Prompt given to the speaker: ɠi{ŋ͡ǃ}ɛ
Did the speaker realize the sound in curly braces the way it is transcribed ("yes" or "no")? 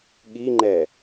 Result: yes